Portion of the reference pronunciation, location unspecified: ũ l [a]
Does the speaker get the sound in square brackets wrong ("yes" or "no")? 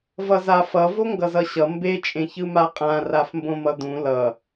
yes